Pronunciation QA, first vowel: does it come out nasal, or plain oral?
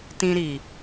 nasal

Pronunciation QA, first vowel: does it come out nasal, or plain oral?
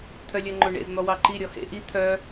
oral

